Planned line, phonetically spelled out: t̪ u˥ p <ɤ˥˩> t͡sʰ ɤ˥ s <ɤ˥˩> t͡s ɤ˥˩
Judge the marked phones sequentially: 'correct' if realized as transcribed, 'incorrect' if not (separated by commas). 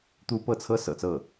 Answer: correct, incorrect